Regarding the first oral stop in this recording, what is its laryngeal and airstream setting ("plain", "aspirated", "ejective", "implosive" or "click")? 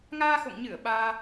implosive